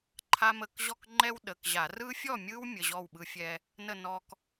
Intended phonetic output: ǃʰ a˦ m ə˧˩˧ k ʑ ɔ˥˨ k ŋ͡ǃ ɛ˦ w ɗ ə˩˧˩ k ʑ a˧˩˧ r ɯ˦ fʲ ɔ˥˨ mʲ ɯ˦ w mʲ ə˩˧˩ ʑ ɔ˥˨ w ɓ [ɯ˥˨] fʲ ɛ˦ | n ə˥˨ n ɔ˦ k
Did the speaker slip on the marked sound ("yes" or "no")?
yes